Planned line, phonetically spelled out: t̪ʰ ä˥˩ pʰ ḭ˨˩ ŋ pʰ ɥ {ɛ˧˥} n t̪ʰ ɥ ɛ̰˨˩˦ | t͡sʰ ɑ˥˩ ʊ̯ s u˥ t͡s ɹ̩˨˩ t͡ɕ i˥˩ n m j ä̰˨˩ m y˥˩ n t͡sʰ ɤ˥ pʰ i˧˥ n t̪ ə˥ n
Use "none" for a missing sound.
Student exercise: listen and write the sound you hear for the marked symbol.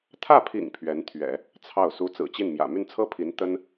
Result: ɛ˧˥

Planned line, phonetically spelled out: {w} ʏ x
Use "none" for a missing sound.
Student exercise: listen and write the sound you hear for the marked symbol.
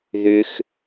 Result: ð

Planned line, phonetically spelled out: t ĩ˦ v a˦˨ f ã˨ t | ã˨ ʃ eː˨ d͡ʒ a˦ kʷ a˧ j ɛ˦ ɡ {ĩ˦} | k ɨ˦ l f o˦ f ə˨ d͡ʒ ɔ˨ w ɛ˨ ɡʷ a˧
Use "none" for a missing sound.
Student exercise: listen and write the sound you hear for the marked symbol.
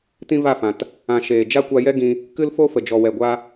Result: ĩ˧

